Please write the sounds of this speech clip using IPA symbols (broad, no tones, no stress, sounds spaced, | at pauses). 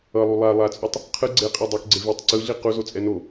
ʌ lˠ u lˠ a lˠ a t͡sʼ o tˤ | qʰ ɯ ɡ͡ǀ e qʼ i dˤ u k ɡ͡ǀ e v i tˤ ǀ ɯ ɮ i q u z o t͡sʼ ɛ n o